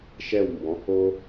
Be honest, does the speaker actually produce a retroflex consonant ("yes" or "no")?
no